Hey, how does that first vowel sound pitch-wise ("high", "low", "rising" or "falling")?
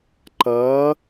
rising